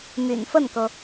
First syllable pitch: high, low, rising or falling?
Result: low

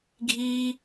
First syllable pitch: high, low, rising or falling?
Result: high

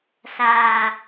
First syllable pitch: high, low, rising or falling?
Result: low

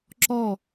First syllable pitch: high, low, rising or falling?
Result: falling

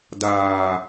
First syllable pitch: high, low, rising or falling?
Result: low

